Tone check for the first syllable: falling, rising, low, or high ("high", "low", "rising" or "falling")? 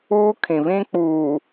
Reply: high